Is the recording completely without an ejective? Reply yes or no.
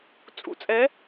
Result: no